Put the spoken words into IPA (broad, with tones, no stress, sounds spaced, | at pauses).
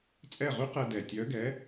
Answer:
t͡sʼ ɛ˥˩ ʁ y˥ q ɛ˧ d ɛ˨˩ tʲ œ˨˥ ɡ ɛ˨˥